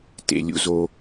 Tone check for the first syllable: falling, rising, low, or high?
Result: low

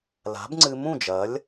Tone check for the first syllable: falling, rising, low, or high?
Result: rising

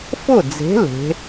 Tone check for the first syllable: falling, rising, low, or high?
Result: falling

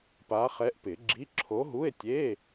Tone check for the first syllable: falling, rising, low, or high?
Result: rising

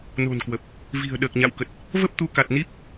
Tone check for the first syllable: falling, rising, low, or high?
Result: low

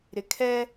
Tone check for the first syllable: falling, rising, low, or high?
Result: low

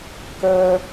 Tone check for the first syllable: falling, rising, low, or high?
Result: high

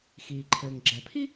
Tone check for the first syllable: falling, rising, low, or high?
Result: low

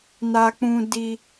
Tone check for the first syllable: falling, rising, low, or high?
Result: low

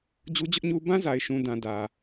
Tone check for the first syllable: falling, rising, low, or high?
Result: high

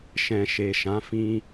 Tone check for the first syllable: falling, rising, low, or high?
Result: low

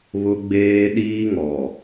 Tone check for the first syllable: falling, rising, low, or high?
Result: high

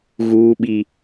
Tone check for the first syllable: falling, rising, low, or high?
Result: low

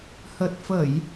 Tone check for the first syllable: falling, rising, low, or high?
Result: low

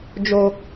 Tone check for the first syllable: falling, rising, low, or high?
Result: low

